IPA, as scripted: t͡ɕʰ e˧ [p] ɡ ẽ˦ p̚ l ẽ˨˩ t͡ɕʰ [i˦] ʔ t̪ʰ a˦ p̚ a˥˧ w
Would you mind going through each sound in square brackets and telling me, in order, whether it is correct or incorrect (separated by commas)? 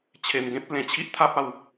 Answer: incorrect, correct